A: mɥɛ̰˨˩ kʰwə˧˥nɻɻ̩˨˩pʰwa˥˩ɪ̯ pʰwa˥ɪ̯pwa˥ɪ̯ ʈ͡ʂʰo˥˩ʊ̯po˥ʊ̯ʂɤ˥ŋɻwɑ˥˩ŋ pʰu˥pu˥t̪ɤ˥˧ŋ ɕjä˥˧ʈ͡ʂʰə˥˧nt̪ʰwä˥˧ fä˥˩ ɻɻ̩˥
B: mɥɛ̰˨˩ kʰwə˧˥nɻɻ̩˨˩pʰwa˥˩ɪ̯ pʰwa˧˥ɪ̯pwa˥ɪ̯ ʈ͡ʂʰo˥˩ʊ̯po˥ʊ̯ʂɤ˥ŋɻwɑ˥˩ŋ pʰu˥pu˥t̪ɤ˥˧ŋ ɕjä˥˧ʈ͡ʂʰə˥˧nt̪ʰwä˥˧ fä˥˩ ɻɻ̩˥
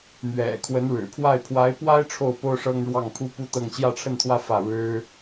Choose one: B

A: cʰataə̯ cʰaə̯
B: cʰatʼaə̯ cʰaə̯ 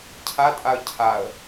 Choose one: B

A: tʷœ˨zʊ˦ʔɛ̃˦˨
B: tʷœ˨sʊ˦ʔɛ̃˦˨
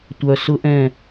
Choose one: B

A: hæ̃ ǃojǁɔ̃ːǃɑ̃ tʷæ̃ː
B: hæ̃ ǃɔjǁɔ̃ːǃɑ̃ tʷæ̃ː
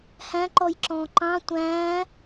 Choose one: B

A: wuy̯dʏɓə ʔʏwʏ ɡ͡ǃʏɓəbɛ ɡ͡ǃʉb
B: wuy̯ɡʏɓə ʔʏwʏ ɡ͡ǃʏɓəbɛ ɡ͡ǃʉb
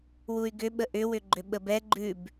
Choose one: B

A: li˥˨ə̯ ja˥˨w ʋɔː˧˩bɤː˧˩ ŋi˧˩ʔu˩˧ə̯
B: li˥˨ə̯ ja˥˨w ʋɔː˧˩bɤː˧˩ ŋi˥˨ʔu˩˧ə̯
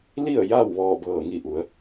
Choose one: A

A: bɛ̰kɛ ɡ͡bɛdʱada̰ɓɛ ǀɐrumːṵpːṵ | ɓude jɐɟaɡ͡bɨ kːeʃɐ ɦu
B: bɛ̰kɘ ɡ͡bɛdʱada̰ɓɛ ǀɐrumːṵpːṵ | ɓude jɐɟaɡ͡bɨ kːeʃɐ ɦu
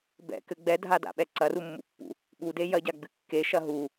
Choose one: B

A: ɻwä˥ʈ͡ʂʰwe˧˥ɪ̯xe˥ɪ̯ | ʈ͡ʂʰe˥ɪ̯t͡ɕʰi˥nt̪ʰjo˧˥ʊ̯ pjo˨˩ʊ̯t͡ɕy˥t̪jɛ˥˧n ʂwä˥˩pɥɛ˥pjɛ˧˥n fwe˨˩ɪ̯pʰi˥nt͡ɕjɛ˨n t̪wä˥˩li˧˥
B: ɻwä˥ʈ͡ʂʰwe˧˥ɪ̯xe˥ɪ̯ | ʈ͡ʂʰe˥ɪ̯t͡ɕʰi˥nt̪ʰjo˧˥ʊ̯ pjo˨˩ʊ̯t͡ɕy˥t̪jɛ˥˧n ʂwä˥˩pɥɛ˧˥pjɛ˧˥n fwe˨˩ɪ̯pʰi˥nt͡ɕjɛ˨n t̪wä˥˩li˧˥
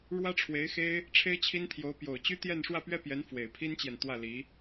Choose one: A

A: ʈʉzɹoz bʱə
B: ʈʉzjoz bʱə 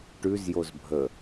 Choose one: B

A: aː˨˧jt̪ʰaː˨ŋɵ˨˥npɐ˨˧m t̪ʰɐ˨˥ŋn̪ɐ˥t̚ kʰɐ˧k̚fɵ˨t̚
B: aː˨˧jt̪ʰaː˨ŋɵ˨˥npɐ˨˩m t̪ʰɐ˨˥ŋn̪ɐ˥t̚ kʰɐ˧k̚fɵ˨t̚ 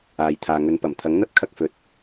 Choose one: B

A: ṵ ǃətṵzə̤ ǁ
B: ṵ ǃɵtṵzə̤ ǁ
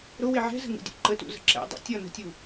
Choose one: A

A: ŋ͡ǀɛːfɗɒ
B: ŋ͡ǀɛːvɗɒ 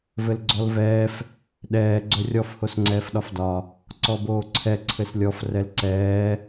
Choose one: A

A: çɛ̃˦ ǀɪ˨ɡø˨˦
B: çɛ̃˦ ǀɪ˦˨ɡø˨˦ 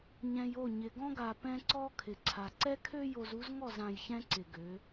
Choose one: A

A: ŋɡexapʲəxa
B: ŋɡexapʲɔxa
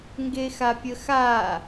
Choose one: A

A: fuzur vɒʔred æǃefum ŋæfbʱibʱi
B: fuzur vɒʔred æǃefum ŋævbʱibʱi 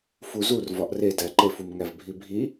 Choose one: B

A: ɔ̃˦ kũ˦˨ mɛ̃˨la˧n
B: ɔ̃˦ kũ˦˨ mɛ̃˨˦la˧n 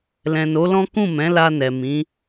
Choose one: B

